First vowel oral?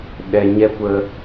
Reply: yes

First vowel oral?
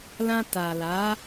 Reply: no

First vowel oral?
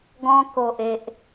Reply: no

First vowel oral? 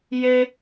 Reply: yes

